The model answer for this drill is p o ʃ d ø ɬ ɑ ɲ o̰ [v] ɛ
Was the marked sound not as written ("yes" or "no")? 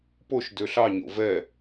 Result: no